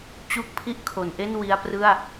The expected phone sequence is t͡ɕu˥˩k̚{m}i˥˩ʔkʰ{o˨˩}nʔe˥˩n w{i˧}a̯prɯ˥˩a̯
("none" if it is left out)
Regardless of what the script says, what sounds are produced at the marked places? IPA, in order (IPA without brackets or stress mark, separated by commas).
pʰ, o˩˦, i˧